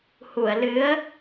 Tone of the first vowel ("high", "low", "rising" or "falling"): low